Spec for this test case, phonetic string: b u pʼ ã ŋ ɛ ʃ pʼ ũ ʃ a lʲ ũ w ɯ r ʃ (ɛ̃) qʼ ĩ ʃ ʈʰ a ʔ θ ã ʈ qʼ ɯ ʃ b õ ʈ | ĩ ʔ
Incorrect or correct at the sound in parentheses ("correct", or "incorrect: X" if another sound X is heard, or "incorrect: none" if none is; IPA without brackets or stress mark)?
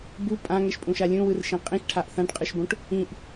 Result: incorrect: ẽ